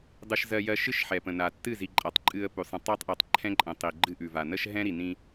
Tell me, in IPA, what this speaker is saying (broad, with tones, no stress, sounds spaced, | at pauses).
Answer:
dˤ ɨ˦ ʃ z ɜ˦ j ɜ˦ ʃ ɨ˦ ʃ ħ ɛ˨ p ə̃˨ n a˨ tː ɨ˦˨ z i˨ ǃʼ a˨ tˤ ǃʼ ɨ˦ ə̯ p ʉ˨ sˤ ə̃˨ tˤ a˦ tˤ ʔ ɛ˨ tˤ ǃʰ ɛ̃˦ ǃʼ ə̃˨ tˤ i˨ ɡ͡ǃ ɨ˦ ʔ ʉ˨ v a˨ n ə˦ ʃ ɦ ɛ̃˦ ɾ i˨ n ĩ˦